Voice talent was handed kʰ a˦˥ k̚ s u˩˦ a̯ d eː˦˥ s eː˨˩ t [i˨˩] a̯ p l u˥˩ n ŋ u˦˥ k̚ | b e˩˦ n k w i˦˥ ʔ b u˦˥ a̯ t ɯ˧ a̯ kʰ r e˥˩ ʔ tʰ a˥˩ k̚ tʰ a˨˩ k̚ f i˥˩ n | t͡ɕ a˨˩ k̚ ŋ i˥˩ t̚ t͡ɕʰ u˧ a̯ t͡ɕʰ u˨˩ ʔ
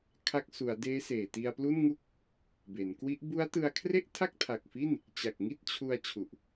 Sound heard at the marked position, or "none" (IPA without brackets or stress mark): i˧